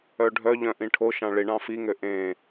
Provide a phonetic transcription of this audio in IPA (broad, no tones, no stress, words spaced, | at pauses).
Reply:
œɖʱœʎœ̃ ʔĩʈʰoʃɑ̃ ɭiɳɑ̃ fiŋø ʔẽ